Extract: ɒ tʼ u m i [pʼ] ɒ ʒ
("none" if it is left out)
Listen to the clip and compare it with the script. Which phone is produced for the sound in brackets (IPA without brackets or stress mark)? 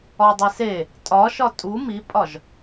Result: pʼ